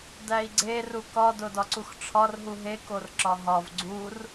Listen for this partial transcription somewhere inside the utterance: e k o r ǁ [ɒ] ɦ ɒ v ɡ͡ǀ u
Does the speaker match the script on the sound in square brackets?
yes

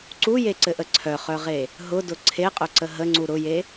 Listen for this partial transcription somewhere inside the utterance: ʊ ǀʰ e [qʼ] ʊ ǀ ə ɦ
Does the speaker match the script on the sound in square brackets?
yes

